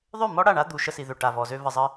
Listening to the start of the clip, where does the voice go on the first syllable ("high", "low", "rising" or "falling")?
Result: falling